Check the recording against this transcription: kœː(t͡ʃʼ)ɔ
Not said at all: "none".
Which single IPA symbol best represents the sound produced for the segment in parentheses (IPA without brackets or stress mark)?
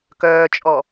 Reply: t͡ʃʼ